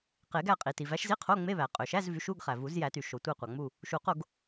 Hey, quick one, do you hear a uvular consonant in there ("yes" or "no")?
yes